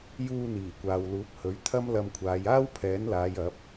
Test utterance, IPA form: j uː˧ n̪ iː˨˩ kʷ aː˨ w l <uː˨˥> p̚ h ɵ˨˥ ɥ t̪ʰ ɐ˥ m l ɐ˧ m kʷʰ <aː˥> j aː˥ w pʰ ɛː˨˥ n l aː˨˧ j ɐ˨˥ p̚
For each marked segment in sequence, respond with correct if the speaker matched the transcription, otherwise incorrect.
correct, incorrect: aː˨˧

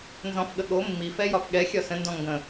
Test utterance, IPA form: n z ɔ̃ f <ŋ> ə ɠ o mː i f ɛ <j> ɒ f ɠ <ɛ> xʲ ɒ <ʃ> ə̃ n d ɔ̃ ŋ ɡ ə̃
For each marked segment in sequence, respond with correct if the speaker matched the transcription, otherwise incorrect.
incorrect: ɠ, correct, correct, incorrect: s

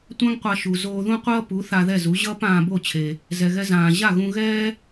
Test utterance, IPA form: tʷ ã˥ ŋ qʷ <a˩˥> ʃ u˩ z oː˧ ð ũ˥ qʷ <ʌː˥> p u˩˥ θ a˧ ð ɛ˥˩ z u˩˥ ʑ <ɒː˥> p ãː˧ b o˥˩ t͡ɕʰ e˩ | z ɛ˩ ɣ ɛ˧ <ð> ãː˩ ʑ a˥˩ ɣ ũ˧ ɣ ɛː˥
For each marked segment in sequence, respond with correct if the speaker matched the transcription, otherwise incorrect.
incorrect: a˧, correct, incorrect: ʌː˥, incorrect: z

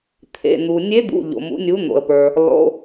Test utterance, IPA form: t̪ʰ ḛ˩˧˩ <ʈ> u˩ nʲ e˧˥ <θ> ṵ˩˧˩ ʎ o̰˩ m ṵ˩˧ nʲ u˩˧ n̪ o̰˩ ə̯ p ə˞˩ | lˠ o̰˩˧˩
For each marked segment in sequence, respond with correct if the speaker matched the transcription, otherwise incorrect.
incorrect: n̪, incorrect: d̪

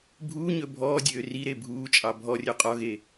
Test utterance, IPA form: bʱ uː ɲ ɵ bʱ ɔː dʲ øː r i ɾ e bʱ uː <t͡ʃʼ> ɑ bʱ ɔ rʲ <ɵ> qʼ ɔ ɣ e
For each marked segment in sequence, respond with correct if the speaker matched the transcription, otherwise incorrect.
correct, incorrect: ø

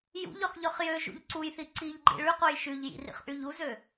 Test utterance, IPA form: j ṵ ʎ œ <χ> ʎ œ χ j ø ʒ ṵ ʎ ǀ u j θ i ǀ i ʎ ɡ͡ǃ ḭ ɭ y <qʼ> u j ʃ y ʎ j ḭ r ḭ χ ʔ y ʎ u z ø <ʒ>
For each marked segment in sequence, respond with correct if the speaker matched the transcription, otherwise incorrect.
correct, incorrect: q, incorrect: none

